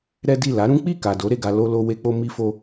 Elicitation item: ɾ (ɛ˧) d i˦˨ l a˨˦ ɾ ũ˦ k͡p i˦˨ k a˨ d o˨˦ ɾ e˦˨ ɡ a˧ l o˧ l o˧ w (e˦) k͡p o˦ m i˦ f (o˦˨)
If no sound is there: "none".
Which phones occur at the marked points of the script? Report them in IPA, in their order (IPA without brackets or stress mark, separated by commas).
ɛ˦, e˦, o˦